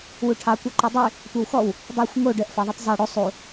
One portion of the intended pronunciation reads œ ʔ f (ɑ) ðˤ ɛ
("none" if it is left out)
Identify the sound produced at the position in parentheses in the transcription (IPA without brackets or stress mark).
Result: ɑ